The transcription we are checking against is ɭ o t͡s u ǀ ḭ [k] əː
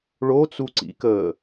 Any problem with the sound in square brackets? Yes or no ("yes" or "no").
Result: no